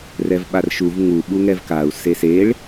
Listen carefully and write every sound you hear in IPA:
r ɛ v ɓ a r ʃ u v ŋ u ɓ u ŋ ɛ v k a u̯ s e s e ɭ

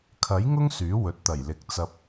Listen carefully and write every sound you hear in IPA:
kʰ ɐ˨˥ j ŋ ʊ˥ ŋ s yː˨˥ w ɵ˨ t̚ t̪ ɐ˨˩ j l ɪ˨˥ k̚ t͡s ɐ˧ p̚

